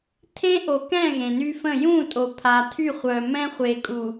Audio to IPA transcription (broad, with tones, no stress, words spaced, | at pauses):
tʰẽ˦ʔo˨ kɛ̃˦˨ ɣẽ˨ny˦fə̃˦˨ jũ˦˨tʼo˨ pʰa˨tʰy˦˨χʷœ˨ mɛ̃˦χʷe˨kʼu˨